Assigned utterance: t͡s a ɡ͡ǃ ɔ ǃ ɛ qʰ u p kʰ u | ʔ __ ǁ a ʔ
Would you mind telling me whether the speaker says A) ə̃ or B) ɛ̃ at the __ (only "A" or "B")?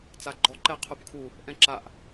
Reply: B